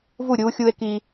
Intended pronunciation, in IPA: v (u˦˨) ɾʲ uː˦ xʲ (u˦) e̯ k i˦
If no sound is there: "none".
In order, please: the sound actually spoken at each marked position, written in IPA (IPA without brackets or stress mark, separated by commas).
u˦˨, u˦